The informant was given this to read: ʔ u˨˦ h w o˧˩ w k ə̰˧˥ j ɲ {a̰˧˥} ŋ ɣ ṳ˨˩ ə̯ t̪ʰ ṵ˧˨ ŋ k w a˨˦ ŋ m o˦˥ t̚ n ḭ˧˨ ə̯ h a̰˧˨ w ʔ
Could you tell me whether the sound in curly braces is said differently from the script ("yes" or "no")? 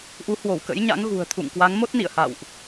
no